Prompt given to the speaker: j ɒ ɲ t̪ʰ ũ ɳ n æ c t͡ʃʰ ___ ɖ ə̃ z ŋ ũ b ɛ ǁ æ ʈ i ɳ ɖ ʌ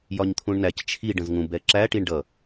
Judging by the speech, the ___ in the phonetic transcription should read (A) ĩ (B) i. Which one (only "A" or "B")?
B